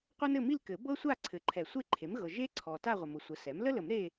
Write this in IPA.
qʷɤ˥nɘ˥˧mi˥˧lkɘ˨˩˦ bɤ˥sʷa˥˧ ǀʰɘ˨ǃʰɛ˨˩˦ sʷe˥ǃʰe˩˥mɣɤ˨ ʒe˥ǀʰɔ˨ ta˥˧ʁʷə˨mʊ˩˥ sʷə˩˥sɛ˩˥m lə˥lə˨˩˦m ɾe˥˧

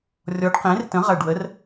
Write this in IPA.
rʲɔ˨˥ɖqẽ˨˥rtə̃˨˥ ʁɐ˧˩ɖwə˨˥r

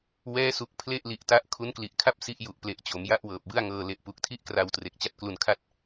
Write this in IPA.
wɛː˦˥su˨˩k̚ pʰle˥˩ʔli˨˩ʔta˦˥ʔ kʰu˦˥nkli˨˩ʔkʰa˥˩p̚ si˦˥ʔju˨˩ʔple˨˩ʔt͡ɕo˩˦m ja˥˩ʔwɤː˨˩p̚bɯ˥˩a̯ŋɤː˧ le˨˩ʔpu˨˩k̚tʰi˥˩ʔkra˧w tre˨˩k̚t͡ɕa˦˥t̚klu˧nkʰa˥˩t̚

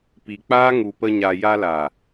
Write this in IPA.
pi˨k͡paː˦ ŋu˨pə˧ɲa˨ ja˧la˨

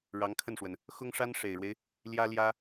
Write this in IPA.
ɻɑ˧˥ŋkʰə˥˩nʂwə˩n | xʊ˥ŋʂa˥n ʂe˨˩ɪ̯ɻwe˦ɪ̯ | ljä˥ljä˥

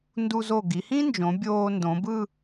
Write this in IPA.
ndu˧zo˧˩ ɡi˩˧hĩ˥nd͡ʒõ˩˧ bʲoː˧ndõ˩˧ bɯ˥˧

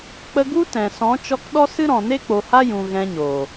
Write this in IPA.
k͡pə˧ɡu˦ tɛ̃˨ sɔ̃˨˦t͡ʃɔ˧k ɗɔ˦sɨ˦ɾɔ̃˨ ne˦k͡po˨ha˦jũ˨ ɣɛ̃˧ɲo˨

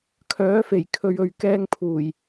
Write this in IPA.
kʰœː˨˥fe˨˩j kʰɵ˨ɥɵ˨ɥkɛː˧ŋ pʰuː˨˩j

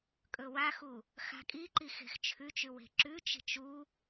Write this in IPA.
kʼɵwaxu | xa̤kʼiǃi xe̤xt͡ʃʰʉt͡ʃʉ we̤ǁʉt͡ʃi̤t͡ʃ u

